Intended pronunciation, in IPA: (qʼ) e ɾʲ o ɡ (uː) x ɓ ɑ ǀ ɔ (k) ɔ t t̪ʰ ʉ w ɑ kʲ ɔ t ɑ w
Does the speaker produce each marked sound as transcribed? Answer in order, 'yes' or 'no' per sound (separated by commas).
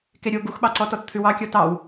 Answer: no, no, no